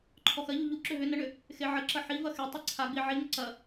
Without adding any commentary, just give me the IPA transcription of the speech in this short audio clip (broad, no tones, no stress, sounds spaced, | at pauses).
ǃʰ ɔ x ɐ ʎ u ʎ u ǁ ʏ ɦ ʏ n ə ɳ ʏ | x e ʕ ə ǁ ɐ ħ i v ɐ x e tˤ i ǀʰ a ɡ͡b i ʕ i ŋ ə ǀ ɐ